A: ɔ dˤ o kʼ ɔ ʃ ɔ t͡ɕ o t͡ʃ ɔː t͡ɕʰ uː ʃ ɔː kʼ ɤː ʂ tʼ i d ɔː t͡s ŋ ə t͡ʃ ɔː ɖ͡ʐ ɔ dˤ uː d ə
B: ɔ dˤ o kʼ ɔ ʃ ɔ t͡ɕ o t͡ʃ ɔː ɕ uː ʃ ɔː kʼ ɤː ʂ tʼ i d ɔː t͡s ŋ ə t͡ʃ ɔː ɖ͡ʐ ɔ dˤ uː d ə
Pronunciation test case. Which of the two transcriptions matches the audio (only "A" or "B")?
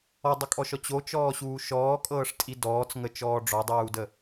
B